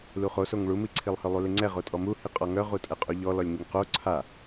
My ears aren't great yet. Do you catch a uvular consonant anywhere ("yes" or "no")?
yes